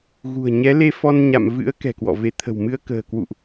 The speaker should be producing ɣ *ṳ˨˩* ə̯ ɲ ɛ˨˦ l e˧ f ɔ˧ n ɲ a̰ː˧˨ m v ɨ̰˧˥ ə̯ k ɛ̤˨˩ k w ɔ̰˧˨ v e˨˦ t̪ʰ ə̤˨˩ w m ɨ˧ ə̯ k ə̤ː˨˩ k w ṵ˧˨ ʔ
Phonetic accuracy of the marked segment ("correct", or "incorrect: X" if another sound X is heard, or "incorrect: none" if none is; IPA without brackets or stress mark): correct